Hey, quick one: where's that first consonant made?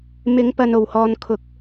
lips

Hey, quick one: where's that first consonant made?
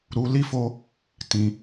tongue tip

